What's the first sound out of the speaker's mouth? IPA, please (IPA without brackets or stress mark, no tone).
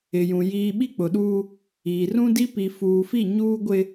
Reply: ɪ